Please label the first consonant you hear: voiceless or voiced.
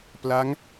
voiceless